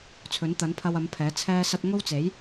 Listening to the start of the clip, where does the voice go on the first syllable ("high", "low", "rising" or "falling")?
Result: rising